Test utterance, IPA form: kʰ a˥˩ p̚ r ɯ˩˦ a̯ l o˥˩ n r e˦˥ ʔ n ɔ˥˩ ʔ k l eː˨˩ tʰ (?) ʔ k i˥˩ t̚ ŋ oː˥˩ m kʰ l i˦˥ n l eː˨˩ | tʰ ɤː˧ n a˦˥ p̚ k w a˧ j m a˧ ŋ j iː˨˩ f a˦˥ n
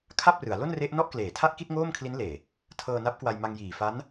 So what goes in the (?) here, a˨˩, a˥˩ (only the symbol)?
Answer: a˥˩